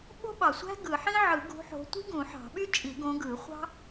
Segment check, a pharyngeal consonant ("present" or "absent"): present